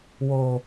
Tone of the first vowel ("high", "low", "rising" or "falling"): low